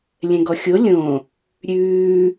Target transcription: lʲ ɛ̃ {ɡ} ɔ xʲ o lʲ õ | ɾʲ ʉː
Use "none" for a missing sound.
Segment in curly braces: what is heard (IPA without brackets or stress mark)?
ɡ